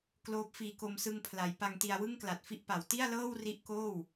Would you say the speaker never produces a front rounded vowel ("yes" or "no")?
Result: yes